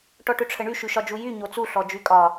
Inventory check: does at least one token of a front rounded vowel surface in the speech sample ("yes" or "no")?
yes